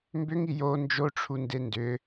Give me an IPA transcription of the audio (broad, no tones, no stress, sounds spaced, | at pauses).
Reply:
m b ʏ ŋ i j o n d͡ʒ o ʈ͡ʂʰ u n d e n d ʏ